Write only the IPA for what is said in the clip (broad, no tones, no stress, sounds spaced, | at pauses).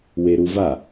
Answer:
w e ɾ u v a